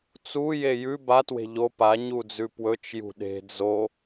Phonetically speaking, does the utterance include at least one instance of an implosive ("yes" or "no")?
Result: yes